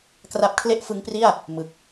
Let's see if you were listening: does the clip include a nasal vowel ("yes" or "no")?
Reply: no